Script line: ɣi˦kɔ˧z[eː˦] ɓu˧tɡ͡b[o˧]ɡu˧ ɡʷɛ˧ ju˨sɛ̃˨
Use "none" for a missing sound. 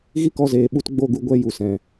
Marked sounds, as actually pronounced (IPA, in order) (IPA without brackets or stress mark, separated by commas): eː˨, o˦˨